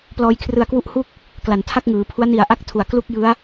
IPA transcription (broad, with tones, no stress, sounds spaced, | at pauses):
p l ɔː˧ j kʰ r ɯ˧ a̯ k w u˦˥ ʔ h u˥˩ k̚ | k l a˩˦ n tʰ a˥˩ k̚ ŋ ɯː˩˦ pʰ u˦˥ a̯ n i˨˩ a̯ ʔ a˦˥ k̚ tʰ u˨˩ a̯ k l u˥˩ k̚ j ɯ˦˥ a̯